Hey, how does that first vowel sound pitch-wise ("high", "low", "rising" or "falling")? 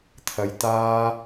low